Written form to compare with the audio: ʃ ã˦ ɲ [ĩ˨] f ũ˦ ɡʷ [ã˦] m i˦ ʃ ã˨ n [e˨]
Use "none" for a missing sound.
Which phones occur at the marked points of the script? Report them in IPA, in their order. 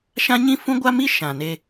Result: ĩ˦, a˦, e˧

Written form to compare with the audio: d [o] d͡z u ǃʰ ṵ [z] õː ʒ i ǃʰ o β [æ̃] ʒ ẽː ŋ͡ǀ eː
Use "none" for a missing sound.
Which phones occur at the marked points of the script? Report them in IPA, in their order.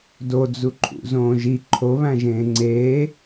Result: o, z, æ̃

